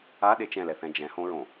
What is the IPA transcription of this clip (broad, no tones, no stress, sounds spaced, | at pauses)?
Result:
a ɗ e t͡ʃ ɛ̃ l ɛ θ ɛ̃ d͡ʒ ɛ̃ h õ ɹ õ